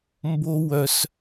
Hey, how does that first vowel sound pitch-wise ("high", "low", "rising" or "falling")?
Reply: high